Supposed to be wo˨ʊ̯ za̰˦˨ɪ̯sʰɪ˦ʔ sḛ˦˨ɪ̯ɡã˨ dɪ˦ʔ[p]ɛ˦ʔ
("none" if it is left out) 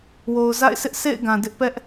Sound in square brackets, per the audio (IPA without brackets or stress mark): p